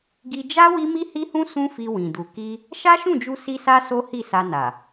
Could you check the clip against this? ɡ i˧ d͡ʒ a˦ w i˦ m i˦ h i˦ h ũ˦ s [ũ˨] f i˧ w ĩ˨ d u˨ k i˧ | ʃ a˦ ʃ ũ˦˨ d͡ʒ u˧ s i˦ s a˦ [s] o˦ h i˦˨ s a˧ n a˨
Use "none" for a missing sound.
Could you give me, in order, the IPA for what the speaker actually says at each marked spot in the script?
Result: ũ˦, s

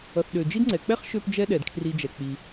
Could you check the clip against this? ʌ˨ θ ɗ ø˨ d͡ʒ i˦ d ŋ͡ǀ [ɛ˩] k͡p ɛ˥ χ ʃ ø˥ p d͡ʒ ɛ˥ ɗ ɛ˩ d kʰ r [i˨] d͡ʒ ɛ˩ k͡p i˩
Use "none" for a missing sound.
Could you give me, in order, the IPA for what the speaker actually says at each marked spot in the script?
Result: ɛ˩, i˨

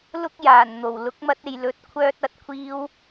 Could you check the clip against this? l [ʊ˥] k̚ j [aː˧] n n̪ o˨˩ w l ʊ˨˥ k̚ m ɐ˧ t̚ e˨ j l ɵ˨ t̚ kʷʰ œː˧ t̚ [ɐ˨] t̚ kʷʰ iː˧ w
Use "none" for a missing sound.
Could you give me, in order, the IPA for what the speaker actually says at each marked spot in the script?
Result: ʊ˥, aː˨˩, ɐ˨

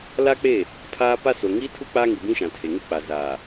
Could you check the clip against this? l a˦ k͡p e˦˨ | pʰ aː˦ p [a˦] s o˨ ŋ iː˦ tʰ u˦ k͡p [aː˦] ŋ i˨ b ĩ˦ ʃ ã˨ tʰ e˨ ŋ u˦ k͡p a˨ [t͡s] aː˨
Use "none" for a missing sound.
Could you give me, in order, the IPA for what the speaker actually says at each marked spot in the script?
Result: a˦, aː˦, z

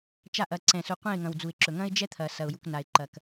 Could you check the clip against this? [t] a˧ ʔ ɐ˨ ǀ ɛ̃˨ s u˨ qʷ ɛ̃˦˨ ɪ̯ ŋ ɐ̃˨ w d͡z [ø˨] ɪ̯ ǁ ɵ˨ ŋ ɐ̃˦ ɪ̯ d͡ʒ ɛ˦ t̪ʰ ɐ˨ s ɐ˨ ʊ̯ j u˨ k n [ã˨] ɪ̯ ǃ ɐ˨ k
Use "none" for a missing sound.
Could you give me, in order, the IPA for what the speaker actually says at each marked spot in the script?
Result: t͡ʃ, u˨, a˨

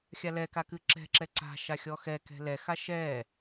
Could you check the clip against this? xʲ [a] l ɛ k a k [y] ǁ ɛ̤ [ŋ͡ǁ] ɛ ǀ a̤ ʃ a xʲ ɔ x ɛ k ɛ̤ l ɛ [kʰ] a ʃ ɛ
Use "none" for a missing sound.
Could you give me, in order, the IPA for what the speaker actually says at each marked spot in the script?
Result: a, ɨ, ǁ, x

